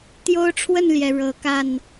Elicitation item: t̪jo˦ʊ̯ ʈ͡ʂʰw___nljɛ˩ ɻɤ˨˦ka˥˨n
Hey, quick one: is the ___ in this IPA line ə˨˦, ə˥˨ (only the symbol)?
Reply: ə˥˨